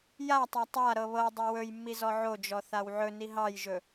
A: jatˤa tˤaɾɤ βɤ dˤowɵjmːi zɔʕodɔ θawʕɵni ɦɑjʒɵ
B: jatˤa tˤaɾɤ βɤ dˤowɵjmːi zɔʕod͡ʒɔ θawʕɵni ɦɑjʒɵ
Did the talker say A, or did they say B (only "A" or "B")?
B